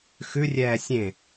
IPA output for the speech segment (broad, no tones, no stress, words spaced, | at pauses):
xʉ rʲɛːsʲẽ